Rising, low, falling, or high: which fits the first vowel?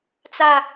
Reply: low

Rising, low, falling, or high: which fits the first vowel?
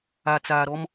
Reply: low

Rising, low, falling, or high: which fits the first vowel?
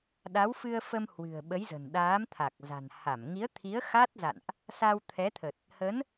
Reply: rising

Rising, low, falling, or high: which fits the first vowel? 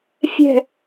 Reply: falling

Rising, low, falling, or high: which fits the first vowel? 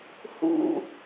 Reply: low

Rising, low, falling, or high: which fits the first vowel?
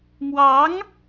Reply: rising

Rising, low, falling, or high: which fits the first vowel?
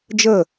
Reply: falling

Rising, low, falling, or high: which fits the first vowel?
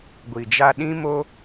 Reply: low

